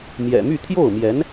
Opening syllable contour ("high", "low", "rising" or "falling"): low